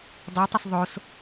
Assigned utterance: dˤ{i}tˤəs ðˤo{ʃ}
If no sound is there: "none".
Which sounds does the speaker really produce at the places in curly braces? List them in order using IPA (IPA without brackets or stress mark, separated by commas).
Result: i, s